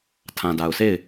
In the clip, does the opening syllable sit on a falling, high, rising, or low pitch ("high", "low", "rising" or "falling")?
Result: low